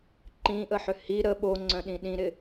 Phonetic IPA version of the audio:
ǃ ĩ ʔ ə ħ ʏ h i ɾ ə ɓ o ŋ͡ǀ œ̃ ɗ ĩ ɗ ĩ ɾ ɪ

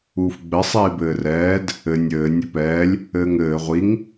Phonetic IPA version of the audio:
uː f ɡ͡b ɘ sˤ iː b ɘː r ɛː d | ɘ nʲ ɘː nʲ ɘ p ɛː lʲ | ɘː ŋ ɘː ʁʷ i ŋ

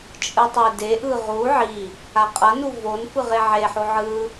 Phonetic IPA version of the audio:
t͡ʃʼ ɯ tˤ e d e ʔ ɯ ʁ u ʕ i | a qʼ ʌ n u v o n f ɯ ʁ e ʕ e ħ o ʕ ɯ

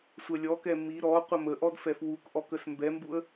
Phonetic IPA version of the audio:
sʷ ɛ lʲ ɔ k ɛ m i ɾ ɔ qʷ ə m ə ʔ ɔ d f ɛ f w u k ʔ ɔ k ə s m b ɛ m b u ə̯

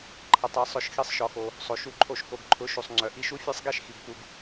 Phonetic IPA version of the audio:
ǃʰ ə˨ tˤ ɛ˧ sˤ ʊ˧ ʃ x i˦ sˤ ʃ ɔ˧ x o˧ | sˤ o˨ ʃ u˧ ǃʰ o˧ ʃ k o˨ ɡ ǃʰ ʊ˨˦ ʃ u˨ sˤ ŋ͡ǀ œ˨ ʔ i˦˨ ʃ u˦ fʲ ɛ˦ sˤ ɡ ɛ˦ ʃ x i˨ ɡ p u˧ ɡ

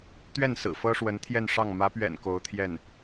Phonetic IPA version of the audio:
t̪ ɥ ɛ˥˩ n s ɹ̩˨˩ f ɤ˥ ʂ w ə˧˥ n t̪ʰ j ɛ˥˧ n ʂ ɑ˥˩ ŋ m ä˧˥ p ɥ ɛ̰˨˩ n k o˧˥ ʊ̯ t̪ʰ j ɛ˥˩ n

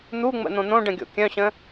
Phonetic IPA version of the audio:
n̪ u ŋ͡m ə̰ n̪ õ n̪ õ ɖ ə̃ ɡʲ o̰ kʲ œ̃ ɕ ə̃

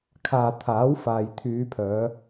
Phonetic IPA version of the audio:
kʰ aː˨ t̪ʰ aː˨˥ w f aː˨ j t̪ʰ yː˨˧ pʰ œː˨˧

